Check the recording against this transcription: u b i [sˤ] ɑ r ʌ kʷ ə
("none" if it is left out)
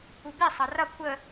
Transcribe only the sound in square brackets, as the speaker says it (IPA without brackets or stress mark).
sˤ